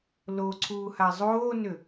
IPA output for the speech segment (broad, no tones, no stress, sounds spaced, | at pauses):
l o ǀʰ uː h a zˤ oː n ʏ